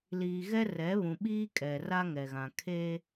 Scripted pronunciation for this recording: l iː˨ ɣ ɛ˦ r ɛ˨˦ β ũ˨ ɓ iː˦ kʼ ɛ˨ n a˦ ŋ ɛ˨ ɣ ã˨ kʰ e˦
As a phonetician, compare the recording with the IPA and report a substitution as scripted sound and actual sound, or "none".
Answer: n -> r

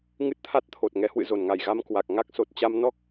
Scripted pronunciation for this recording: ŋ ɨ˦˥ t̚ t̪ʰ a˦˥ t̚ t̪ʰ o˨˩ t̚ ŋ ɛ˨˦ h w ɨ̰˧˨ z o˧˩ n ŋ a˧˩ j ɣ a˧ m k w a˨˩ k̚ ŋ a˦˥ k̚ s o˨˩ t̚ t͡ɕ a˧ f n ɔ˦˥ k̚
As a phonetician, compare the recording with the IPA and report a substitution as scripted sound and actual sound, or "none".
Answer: f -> m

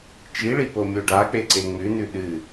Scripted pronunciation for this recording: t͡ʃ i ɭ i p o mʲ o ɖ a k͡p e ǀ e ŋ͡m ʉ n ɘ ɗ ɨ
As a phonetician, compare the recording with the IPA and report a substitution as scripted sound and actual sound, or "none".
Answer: ɘ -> ʉ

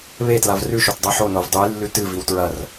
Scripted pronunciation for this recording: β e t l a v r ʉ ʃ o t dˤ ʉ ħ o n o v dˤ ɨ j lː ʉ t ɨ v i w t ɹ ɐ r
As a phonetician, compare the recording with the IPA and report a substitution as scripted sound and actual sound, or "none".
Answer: none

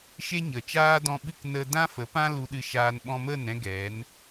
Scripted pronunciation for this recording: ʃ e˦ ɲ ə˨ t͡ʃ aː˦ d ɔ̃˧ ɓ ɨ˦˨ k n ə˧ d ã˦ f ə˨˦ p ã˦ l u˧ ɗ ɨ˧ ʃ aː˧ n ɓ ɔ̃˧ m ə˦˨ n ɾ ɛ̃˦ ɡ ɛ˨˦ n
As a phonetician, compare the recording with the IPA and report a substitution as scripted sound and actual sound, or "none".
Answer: none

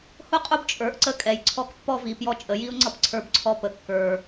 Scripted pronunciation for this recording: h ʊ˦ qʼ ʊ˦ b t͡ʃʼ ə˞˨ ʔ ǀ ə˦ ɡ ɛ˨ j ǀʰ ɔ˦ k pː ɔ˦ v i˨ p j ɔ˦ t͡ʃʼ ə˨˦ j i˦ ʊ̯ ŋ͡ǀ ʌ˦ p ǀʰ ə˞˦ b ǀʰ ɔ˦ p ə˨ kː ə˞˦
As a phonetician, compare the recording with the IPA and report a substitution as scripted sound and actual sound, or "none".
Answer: ɡ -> kʼ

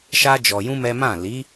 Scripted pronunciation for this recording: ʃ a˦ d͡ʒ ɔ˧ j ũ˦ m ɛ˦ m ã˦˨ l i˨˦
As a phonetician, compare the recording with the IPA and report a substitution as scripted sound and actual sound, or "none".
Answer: none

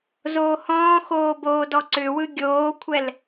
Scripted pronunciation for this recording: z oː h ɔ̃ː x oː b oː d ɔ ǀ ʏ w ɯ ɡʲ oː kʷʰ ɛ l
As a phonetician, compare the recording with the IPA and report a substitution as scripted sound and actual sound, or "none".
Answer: none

